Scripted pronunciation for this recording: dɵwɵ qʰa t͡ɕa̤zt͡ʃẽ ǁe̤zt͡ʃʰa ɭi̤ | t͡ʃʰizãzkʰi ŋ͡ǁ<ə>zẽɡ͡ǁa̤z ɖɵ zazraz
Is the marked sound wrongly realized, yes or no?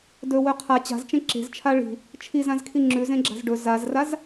yes